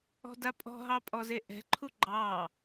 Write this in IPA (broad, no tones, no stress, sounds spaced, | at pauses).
ɔ̤ d a pʼ ɔ̤ ɦ ɑ pʼ ɔ z e ʔ ɛ̤ ǃʰ u ɡ͡ǃ ɑ